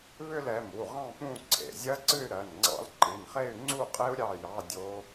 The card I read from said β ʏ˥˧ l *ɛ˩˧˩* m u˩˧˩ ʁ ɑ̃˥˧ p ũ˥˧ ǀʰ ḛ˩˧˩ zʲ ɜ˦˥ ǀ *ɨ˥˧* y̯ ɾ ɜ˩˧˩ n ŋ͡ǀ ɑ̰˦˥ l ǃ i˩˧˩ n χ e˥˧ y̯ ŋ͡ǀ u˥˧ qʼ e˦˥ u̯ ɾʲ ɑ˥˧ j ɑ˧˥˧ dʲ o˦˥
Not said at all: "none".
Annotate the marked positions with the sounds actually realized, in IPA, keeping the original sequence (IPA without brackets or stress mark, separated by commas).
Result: ɛ˩˧˩, ɨ˥˧